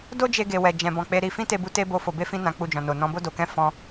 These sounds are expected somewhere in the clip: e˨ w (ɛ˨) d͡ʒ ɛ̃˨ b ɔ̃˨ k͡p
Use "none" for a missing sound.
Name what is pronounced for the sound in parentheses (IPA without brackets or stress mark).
ɛ˨